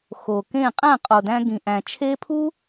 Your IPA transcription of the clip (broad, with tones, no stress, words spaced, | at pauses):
xo˨kẽ˦˨ qʼæ̃˦˨qʼo˨dæ̃˧ ɡĩ˨ʔæ̃˨t͡ʃʰe˦ pʰu˦